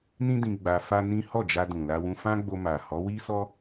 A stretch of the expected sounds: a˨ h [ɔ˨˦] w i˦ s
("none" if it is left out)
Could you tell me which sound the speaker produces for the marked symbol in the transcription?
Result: ɔ˨˦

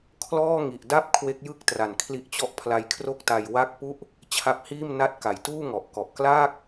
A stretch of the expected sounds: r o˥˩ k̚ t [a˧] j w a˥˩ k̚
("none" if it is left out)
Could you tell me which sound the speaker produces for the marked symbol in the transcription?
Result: a˧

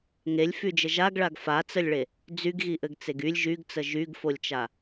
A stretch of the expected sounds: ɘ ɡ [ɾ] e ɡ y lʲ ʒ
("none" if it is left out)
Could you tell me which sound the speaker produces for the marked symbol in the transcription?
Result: t͡s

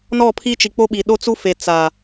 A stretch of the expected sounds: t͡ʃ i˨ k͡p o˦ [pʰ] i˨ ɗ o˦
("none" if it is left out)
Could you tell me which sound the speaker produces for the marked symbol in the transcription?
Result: ɓ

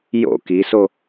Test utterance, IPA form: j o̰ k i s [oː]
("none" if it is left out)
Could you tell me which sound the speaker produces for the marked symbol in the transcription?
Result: o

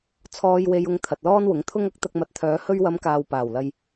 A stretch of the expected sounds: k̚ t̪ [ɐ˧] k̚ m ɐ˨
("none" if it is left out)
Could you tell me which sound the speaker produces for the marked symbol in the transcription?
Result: ɐ˧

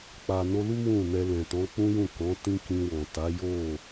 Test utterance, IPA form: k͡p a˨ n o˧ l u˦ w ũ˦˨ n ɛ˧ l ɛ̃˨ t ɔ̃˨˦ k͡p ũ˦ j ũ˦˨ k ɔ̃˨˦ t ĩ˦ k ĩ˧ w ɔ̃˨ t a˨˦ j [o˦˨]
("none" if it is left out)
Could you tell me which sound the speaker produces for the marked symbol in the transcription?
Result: o˦˨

